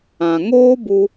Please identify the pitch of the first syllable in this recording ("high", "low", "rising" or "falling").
low